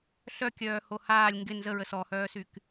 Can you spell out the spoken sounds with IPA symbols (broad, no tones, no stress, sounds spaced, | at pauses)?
ɬ œ kʲ œː h o h aː lʲ ŋ ɡ ɪ n z ə ɹ ə s ɔ h œː s y k